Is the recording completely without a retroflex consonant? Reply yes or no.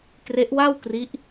yes